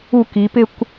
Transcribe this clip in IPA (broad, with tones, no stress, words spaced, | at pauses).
u˥˧ ki˩˧pɪ˥˧kʷ